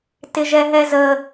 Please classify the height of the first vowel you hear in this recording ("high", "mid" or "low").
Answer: high